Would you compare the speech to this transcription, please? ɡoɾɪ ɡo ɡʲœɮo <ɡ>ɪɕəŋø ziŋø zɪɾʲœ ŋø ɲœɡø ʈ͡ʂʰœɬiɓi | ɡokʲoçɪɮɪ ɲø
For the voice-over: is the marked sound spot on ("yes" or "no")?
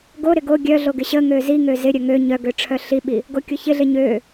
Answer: yes